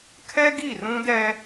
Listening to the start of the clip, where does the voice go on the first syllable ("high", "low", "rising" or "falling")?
high